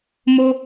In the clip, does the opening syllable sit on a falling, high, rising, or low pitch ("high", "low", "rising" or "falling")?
high